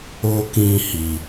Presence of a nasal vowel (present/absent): present